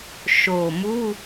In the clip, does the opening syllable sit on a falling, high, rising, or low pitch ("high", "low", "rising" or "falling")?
low